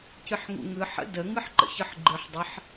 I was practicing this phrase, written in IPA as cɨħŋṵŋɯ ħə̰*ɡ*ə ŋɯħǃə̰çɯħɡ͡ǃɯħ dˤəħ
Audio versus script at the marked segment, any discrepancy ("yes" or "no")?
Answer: yes